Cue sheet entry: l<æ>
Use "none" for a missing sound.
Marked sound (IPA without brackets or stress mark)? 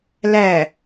æ